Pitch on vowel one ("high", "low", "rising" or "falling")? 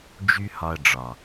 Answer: high